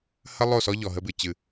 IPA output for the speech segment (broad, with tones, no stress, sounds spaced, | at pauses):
h ə˦ lˠ o˦˨ s ɔ˦ ʎ ɔ˨ ɦ ə˦ b ɨ˨ t͡ɕ ɨ˦˨